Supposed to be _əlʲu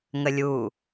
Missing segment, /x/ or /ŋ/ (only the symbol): ŋ